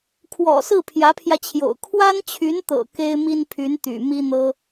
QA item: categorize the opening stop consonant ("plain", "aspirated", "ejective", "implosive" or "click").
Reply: aspirated